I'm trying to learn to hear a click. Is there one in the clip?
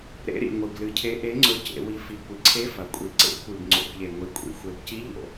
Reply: yes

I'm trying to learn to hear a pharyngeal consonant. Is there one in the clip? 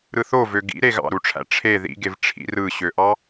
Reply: no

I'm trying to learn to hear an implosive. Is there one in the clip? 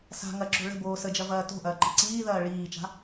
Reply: no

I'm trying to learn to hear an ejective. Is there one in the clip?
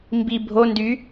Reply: no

